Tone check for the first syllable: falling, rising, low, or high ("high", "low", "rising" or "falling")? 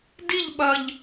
falling